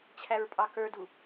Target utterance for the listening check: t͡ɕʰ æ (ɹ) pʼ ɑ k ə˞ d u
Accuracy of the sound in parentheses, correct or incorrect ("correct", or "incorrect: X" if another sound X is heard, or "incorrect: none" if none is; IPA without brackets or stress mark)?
correct